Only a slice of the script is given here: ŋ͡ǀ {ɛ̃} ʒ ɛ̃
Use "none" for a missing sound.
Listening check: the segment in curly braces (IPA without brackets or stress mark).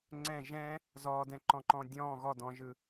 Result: ɛ̃